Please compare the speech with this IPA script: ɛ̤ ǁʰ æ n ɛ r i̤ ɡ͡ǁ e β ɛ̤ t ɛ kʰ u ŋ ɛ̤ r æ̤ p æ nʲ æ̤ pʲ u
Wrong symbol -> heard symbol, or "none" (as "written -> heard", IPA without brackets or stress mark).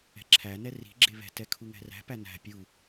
nʲ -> n